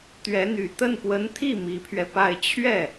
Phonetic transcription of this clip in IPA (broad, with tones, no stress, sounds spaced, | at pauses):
t̪ ɥ ɛ˧˥ n̪ y˨˩ t̪ ə˥˩ n p w ə˧˥ n t̪ʰ i˥˩ m i˧˥ pʰ ɥ ɛ˧ p a˥˧ ɪ̯ t͡ɕʰ ɥ ɛ˥˩